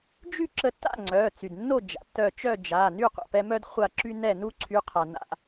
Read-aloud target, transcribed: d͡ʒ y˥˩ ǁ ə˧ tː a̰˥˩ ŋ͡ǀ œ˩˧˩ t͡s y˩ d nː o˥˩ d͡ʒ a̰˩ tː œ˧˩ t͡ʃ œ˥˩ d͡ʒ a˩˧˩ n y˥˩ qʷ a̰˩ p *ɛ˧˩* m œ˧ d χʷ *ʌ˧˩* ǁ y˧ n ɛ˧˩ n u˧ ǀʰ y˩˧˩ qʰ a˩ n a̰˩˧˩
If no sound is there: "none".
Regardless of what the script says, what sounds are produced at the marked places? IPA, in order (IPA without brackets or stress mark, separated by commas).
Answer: ɛ˧, a˧˩